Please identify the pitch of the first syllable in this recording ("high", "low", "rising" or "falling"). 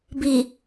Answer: low